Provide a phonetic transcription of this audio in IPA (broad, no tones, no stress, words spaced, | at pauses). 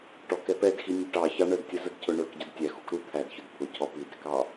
ʈɔk ɛpɛdxi nʲʊʈɑçɑ ɳədtʲəzəd cʰʊɳə˞kɟʊd tʲæ xukɾu t̪ʰædçʊd t̪ʰʊcʰɔ pidɾɪkɑ